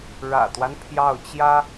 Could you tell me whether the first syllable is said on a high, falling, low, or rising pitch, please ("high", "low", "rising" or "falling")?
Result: low